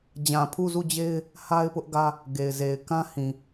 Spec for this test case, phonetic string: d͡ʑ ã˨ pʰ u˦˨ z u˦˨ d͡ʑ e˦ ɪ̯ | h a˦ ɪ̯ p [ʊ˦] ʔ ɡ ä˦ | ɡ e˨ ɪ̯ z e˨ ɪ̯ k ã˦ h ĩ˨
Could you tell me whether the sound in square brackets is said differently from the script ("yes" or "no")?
no